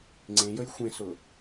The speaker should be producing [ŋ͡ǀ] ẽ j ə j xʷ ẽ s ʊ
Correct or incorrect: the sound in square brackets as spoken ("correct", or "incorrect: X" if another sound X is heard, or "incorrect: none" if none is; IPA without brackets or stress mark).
correct